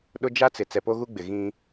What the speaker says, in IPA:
ɗʊ˦ d͡ʒa˦t͡sɪ˨ t͡sɛ˨po˦ɣu˦ɡ͡bɪ˨ ɣĩ˦

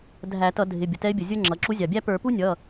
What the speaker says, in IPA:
dʱæ˧˩˧tʌ˧˩˧ dʱɪ˩˧˩ bʲʊ˩tɛ˧˥ɪ̯bʲə˩zʲə˞˥ ŋ͡ǁʌ˩˧˩ǁu˧˥ zʲɑ˩bʲæ˥ pə˞˧˩˧pu˥nʲʌ˩˧˩

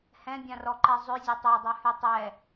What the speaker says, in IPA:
hɛ̃bʲãrɔǃɛ zˤøzʲo tˤœdˤœhy tˤɛ

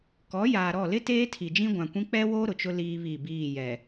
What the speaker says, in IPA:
kɔ˨˦jaː˨ɾɔ˦˨ lɪ˦ teː˦ tʰi˨d͡ʒĩ˦ɡʷã˨kʷĩ˦ k͡pɛ˦woː˦ ɾʊ˨t͡ʃʊ˦ liː˦βi˦˨biː˦˨jɛ˨

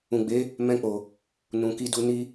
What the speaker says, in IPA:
ũ˨ɡ͡be˨˦ | mɛ̃˧k͡po˨ | nũ˨ki˧du˧ ni˧

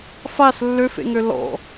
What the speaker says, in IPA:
fas lːøfḛŋø lɔ̰

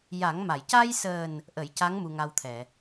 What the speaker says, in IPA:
ja˨˩˦ŋma˨˩˨j ca˧jsəː˨˩n | ʔə˨˩˦jca˧˥ŋ mu˧ŋa˧wt̪ʰɛ˨˩˨

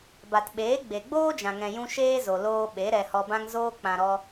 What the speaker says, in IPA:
ba˨tɓeː˨˦ ɡ͡be˨ɡ͡boː˦d͡ʒã˨ ŋɛ̃˨jũ˧ ʃeː˦zo˨ loː˧ɓe˨˦ ɾɛ˧hɔ˧bã˦ŋ zoː˧ k͡pã˨ɾɔ˧

